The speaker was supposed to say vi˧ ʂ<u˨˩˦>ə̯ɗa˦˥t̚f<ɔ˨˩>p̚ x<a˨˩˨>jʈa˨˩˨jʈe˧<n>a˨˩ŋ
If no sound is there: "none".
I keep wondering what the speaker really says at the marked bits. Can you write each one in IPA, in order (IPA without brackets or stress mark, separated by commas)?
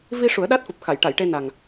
u˨˩˦, o˨˩, a˨˩˨, n